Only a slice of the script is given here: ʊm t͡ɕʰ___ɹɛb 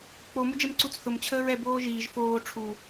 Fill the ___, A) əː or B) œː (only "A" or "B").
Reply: A